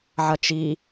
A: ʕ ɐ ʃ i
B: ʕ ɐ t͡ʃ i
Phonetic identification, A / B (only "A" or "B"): B